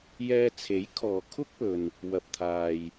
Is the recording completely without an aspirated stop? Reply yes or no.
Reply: no